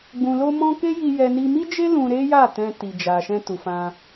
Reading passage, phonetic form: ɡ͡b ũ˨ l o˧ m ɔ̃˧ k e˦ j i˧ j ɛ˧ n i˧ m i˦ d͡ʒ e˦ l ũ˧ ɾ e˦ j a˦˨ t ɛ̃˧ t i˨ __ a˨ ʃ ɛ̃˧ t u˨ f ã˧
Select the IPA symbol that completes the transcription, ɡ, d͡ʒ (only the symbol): d͡ʒ